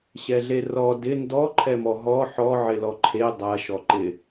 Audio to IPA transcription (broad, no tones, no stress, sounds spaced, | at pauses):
ɕ ɛ ɮ e r ɔ d ɪ n d ɔ ǃʰ ɛ m ɔ ɦ ɔ ħ ɔ ʕ ɪ l ɔ ǃʰ e dˤ ɐ ʃ ɔ ǃ ɪ